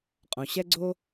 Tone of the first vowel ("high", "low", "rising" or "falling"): low